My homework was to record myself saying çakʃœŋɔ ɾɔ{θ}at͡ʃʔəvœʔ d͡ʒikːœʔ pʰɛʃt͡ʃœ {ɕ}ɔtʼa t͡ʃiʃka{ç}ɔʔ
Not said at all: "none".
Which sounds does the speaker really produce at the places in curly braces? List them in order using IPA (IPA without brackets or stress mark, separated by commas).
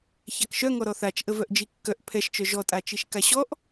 θ, ʒ, ɕ